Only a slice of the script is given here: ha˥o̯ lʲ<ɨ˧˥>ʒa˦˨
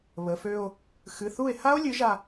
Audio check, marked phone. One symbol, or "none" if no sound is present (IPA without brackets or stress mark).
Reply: ɨ˧˥